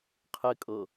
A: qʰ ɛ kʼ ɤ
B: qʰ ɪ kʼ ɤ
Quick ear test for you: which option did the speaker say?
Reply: B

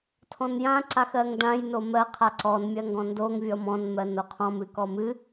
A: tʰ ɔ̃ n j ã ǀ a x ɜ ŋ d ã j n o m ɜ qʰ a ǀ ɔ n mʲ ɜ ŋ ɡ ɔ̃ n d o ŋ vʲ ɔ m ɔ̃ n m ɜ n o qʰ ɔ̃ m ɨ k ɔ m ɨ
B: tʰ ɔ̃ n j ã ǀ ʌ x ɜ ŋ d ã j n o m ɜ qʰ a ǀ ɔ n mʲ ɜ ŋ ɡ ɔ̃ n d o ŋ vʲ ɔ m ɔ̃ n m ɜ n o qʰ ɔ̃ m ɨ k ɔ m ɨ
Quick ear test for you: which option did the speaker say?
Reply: A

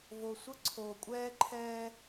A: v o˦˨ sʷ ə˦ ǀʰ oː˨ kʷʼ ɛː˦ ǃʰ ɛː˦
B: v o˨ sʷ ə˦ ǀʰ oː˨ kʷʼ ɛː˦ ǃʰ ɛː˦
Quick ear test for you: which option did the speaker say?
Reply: B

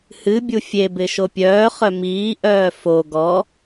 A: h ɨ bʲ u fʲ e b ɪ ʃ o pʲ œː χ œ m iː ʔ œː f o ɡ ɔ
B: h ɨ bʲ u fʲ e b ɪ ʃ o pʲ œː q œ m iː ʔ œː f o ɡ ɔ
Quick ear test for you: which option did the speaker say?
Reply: A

